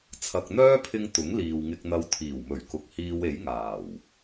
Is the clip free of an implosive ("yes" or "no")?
yes